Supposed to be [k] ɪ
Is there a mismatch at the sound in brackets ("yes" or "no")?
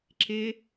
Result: yes